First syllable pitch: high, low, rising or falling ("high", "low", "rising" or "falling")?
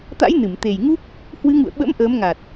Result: rising